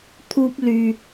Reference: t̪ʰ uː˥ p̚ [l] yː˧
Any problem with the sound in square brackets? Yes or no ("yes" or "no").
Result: no